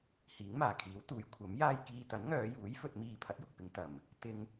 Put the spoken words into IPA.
hiː˨˥ŋmaː˨˩kʰiː˨˥w t̪uː˨˧jkʷʰɐ˨˥mjaː˥j kiː˧ t̪ɐ˨˥nŋœː˨˧juː˨˥j fɵ˧t̚ miː˧ pʰɐ˨˥t̚jʊ˨k̚pɪ˨˧ŋ t̪ɐ˨˩m | t̪ɪ˧ŋ

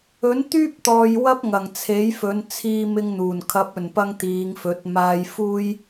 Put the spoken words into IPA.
ɵ˨˥nt̪yː˥p̚t̪ɔː˨j wɐ˥p̚ŋɐ˨˩ŋ t͡sʰe˨˥jfɵ˨˧n t͡sʰiː˧mɪ˧ŋn̪uː˨˩n kʰɐ˨˥p̚ɵ˨˩npɐ˧ŋ t̪iː˨˧ŋfɵ˨˥t̚ maː˧jfuː˥j

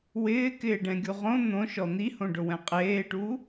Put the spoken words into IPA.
wɪːkɪːɖɛ̃ɡʲu ʁõ n̪õʃɔ n̪ihõɖʊwɛ̃ qʼeːʈuː

